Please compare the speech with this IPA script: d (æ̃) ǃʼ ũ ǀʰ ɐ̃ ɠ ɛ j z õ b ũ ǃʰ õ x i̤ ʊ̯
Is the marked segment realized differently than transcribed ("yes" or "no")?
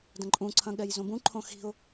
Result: yes